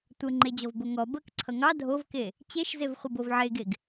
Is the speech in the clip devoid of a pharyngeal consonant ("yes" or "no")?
no